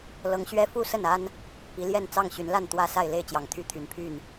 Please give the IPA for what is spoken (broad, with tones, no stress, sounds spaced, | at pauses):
l ɤ˨˦ ŋ ɕ ɥ ɛ˦ f u˥˨ s ə˥˨ n a˦ n | p i˨˦ l j ɛ˥˨ n t͡s ɑ˥˨ ŋ ɕ y˨˦ n l a˥˨ n t̪ w ä˦ s a˥˨ ɪ̯ l e˥˨ ɪ̯ t͡ɕ j ɑ˨˩ ŋ t̪ʰ y˥˨ t̪ʰ y˨˩ n pʰ y˥˨ n